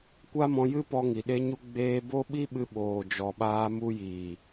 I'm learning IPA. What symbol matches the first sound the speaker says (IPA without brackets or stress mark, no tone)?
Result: kʷ